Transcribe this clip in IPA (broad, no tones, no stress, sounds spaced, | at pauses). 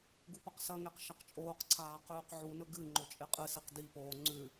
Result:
ɡ u p ɐ q s ɐ ŋ e q ʃ ɐ q t͡ʃʼ oː q ǀʰ aː q ʉː q ʕ u n ɵ ɡ ɨ ŋ͡ǃ o t͡ʃʼ e qʼ ɨ s i q d i p oː ŋ͡ǀ ʉ